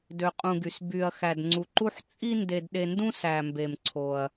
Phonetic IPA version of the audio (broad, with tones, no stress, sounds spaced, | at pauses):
d ø˩ qʼ ũ˩ ɡ y˩ s b y˩ ɐ̯ x æ˩ d ŋ͡ǀ u˩ ǃ u˧ ħ t͡sʼ i˧ n d e˩ d ɗ e˩ n d ũ˧ s æ˩ m b e˩ m ǀʰ o˩ ɐ̯